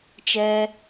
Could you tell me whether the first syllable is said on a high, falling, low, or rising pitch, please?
high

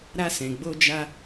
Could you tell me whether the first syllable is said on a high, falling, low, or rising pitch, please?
high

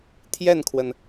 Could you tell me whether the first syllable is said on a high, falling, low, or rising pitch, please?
falling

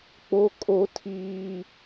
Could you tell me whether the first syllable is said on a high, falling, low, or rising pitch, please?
high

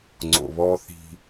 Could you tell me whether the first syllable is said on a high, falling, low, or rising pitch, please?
low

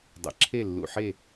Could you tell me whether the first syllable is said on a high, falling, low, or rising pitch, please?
low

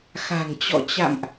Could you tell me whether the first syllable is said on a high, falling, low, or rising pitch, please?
low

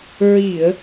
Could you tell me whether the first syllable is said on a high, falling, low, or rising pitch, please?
low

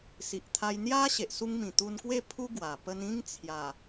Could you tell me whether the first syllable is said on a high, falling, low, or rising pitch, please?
low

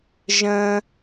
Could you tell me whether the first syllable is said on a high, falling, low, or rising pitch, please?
low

